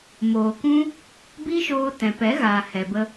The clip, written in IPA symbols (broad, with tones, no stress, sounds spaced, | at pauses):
m oː˨ k ũ˦ | b i˦ ʃ oː˧ t ɛ̃˨ p ɛ˨˦ ɣ aː˨ h ɛ˨ b ə˧